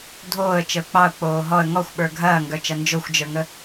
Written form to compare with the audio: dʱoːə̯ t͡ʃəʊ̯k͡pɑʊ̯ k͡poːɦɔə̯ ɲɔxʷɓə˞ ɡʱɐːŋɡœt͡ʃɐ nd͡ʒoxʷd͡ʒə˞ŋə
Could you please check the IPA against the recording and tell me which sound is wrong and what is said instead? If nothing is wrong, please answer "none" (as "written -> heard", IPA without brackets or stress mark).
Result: ɲ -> ŋ